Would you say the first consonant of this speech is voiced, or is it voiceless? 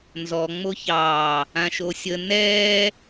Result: voiced